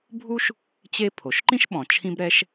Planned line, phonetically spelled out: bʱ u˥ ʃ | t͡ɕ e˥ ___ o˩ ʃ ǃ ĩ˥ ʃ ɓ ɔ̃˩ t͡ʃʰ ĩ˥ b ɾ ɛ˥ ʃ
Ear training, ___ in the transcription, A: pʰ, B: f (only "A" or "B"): A